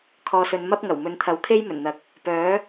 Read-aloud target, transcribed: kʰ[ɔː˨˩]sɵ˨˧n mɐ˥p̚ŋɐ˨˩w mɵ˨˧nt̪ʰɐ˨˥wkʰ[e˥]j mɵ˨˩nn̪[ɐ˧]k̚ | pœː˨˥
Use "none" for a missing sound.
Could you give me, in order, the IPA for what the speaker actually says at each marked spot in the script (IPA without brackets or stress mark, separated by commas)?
ɔː˨, e˥, ɐ˨˥